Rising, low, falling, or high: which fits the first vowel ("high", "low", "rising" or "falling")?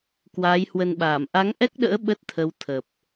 rising